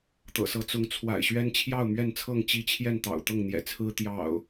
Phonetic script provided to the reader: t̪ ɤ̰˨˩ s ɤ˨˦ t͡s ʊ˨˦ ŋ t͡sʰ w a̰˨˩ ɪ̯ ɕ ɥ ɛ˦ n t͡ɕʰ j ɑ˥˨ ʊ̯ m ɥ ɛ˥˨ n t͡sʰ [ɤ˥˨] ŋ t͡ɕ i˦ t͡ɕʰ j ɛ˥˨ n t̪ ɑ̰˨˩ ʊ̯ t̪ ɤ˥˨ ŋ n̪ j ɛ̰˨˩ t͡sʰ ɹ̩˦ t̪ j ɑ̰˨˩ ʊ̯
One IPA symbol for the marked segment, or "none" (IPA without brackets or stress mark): ɤ˥˨